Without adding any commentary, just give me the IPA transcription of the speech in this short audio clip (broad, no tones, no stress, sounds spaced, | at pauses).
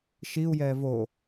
ʃ i u̯ j ɛː v o